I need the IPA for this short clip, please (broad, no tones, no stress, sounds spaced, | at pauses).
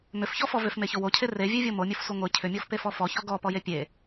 m ʏ f ç ɔ f ɔ v ʏ f m e ç o w o cʰ e r e vʲ e vʲ o m o mʲ o f sʷ e ŋʷ e cʰ ʏ mʲ ɔ f p e f ɔ f ɔ ç ɔ ɡ ɔ p ɔ j e pʲ e